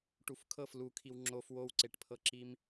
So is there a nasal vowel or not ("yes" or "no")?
no